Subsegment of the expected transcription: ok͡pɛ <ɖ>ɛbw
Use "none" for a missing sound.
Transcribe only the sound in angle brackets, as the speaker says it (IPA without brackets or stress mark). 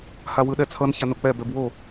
b